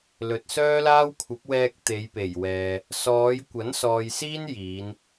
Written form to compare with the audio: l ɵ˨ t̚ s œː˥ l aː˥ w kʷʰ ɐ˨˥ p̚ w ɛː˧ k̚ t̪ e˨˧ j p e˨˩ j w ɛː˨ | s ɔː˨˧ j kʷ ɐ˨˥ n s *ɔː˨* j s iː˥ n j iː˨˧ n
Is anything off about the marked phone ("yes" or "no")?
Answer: no